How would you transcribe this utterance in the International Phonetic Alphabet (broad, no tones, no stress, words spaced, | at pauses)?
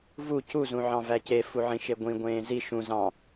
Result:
vu cu zũʕɑ̃væce fuʕĩʃeɡʷĩ ɡʷẽːzi ʃũ zɑ̃